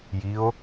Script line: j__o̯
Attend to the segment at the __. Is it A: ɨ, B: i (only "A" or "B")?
B